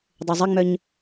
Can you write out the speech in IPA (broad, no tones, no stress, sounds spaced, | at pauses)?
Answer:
dˤ ø zˤ ɪ ŋ͡m œ ɲ